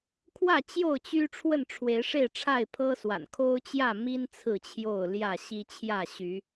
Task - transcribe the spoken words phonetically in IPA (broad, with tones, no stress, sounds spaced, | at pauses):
kʰ w ä˥˨ t͡ɕ j o˥˨ ʊ̯ t͡ɕ y˦ ʈ͡ʂʰ w ə˥˨ n ʈ͡ʂʰ w e˨˦ ɪ̯ ʂ e˥˨ ɪ̯ ʈ͡ʂʰ a˥˨ ɪ̯ pʰ ɤ˦ s w a̰˨˩ n kʰ o˦ ʊ̯ t͡ɕ j ä˥˨ m i˦ n t͡sʰ ɹ̩˥˨ t͡ɕʰ j o˥˨ ʊ̯ l j ä˥˨ ɕ i˦ t͡ɕʰ j ä˥˨ ɕ y˨˦